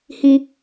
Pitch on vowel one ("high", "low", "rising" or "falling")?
low